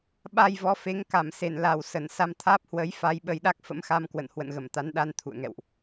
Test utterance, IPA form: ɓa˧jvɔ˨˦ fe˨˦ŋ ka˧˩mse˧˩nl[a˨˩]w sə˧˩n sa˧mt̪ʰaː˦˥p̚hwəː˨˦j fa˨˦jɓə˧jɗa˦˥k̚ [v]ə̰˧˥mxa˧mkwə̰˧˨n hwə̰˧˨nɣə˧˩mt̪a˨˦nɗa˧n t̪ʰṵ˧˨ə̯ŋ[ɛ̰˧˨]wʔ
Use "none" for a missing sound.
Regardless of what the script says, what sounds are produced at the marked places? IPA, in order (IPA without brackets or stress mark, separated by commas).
a˨˩, f, ɛ̰˧˨